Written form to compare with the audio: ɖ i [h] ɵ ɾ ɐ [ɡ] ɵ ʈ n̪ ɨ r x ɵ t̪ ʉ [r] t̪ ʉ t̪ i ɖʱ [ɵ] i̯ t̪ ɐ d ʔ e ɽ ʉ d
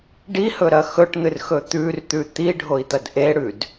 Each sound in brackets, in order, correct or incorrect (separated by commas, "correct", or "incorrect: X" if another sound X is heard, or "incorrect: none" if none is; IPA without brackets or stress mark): correct, incorrect: x, correct, incorrect: o